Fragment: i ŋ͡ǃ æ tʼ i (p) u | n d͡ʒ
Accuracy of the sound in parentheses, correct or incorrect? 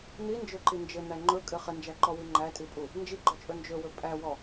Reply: incorrect: pʼ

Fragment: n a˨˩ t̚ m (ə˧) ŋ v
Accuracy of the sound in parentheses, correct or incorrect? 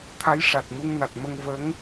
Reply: correct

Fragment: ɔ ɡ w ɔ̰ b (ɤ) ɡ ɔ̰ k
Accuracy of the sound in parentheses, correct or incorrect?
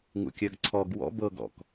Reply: correct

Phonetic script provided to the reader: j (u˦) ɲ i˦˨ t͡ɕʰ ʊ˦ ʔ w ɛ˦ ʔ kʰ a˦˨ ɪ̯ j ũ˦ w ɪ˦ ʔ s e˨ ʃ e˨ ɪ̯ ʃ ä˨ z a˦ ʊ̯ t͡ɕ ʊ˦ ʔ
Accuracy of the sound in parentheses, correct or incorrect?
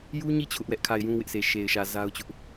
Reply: correct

